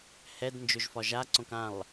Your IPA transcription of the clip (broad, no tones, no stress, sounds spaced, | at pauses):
h ɛ d n d͡ʒ ɵ ʒ f ɒ ʒ a ǀ õ k ã lˠ